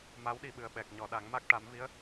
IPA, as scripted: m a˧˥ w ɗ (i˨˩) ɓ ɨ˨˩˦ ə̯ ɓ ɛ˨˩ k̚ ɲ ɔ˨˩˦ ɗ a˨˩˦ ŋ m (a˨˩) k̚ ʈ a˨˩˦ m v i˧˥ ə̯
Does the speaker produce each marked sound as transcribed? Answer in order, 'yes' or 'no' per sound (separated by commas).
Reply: no, no